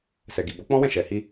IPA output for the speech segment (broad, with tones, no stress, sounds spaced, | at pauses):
s ɛ˨ ɡ i˨ b ɔ˨˦ k͡p ɔ̃˦ w ɛ̃˦˨ ʃ ɛ˨ h i˧